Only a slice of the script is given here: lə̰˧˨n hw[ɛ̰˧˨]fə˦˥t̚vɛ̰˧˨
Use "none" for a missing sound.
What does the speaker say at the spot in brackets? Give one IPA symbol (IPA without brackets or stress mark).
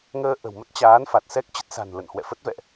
ɛ̰˧˨